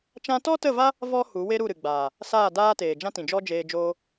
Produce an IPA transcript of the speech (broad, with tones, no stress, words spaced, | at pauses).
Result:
t͡ʃã˧tɔ˦tə˦˨va˦ | vɔ˦ hu˨˦we˦ɾu˦˨ɾɨ˨ ɡ͡baː˨ | saː˦˨daː˦teː˨ d͡ʒã˦tĩ˨d͡ʒɔ˦ d͡ʒeː˧d͡ʒoː˦